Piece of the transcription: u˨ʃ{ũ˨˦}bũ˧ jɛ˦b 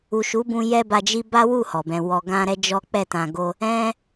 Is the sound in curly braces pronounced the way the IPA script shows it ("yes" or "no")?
no